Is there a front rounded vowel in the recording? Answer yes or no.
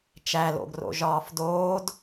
no